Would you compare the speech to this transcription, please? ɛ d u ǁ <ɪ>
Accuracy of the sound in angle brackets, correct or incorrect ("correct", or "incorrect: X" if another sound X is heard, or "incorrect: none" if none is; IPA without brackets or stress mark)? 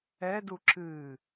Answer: incorrect: ɨ